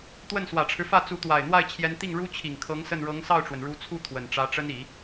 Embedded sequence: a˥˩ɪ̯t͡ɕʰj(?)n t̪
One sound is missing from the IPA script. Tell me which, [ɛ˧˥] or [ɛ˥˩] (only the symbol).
ɛ˧˥